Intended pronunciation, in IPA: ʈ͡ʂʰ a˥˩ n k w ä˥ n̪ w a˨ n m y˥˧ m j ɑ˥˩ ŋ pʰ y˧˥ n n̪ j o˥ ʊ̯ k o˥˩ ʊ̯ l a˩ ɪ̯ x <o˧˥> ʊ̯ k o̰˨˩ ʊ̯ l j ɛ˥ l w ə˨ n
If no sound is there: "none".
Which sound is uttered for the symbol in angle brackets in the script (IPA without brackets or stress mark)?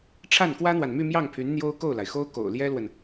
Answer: o˥